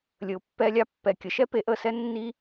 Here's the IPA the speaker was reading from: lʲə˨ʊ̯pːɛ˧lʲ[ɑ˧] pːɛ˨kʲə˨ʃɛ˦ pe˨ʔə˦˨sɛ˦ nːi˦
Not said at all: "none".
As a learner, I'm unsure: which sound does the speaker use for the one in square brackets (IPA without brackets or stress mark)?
ɑ˧